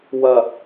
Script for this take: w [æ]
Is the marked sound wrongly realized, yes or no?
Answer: yes